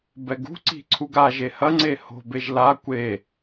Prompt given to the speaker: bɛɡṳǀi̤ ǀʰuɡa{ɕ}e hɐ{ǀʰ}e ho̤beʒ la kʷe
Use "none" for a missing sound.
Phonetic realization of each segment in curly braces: ʒ, ŋ͡ǀ

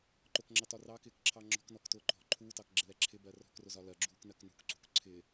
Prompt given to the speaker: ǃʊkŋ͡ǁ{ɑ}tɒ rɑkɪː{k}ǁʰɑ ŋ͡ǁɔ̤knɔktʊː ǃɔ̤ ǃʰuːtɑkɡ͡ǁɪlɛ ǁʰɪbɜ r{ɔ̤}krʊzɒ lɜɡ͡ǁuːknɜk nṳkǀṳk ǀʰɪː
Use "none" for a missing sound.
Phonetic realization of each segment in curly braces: ɑ, k, ɔ̤

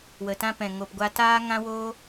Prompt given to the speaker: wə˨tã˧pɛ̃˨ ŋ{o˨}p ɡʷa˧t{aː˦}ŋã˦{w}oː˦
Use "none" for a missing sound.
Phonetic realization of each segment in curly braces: o˨, aː˦, w

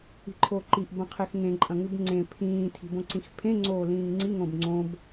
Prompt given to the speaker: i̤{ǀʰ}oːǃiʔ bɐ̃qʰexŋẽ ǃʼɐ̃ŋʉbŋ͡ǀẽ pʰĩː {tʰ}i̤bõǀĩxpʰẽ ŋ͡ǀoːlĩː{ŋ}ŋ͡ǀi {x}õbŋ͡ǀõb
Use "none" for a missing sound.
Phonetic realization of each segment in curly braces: ǃʰ, tʰ, ŋ, ŋ

